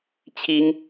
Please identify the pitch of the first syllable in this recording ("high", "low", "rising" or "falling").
high